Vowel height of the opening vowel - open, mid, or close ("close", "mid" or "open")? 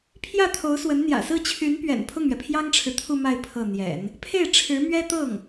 open